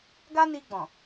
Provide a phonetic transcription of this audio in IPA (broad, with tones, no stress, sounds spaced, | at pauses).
ɡ a˦ n i˧ ɡ͡b ɔ̃˨